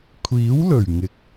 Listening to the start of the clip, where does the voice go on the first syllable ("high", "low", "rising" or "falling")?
rising